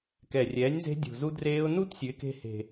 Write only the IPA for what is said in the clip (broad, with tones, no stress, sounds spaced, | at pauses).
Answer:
k ɛ˨˩ rʲ ɛː˩˥ nʲ z e̤˦˥ dʲ ṳ˨˩ z u˦˥ d r eː˦˥ ʊ̯ n u˦˥ t sʲ ʉ˩˥ ɪ̯ k e̤˦˥ h e̤˨˩